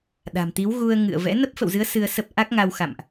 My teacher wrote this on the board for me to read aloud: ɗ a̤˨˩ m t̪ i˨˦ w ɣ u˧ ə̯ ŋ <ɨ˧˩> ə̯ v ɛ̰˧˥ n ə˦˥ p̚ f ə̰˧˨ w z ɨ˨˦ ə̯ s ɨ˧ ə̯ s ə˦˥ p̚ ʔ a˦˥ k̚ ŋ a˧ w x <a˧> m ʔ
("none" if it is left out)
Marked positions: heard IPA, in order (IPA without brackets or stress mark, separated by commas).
ɨ̰˧˨, a̰˧˨